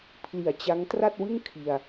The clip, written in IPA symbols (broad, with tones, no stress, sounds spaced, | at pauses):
pʰ l i˨˩ a̯ t͡ɕ a˦˥ ŋ t r a˥˩ t̚ w ɯ˥˩ ŋ kʰ i˧ a̯